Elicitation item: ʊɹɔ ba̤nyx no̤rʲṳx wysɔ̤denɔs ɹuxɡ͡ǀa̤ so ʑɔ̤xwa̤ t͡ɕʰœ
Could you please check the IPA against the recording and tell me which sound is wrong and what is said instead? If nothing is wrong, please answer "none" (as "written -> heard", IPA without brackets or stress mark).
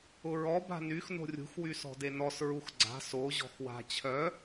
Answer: none